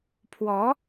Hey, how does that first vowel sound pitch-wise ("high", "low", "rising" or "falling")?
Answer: rising